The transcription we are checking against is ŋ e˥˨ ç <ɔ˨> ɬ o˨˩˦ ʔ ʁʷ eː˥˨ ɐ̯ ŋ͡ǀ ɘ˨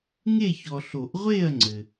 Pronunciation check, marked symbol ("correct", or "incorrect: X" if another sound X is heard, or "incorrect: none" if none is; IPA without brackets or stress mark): correct